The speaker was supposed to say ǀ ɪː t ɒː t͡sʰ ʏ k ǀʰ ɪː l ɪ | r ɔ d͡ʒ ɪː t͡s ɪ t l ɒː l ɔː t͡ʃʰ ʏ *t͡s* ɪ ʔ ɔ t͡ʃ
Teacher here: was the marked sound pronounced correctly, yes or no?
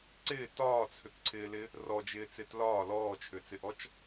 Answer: yes